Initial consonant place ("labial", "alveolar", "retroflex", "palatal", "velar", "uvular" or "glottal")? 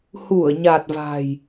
glottal